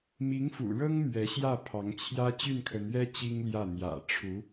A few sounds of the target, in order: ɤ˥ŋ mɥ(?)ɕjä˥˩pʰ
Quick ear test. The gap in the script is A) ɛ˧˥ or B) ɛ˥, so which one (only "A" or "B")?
A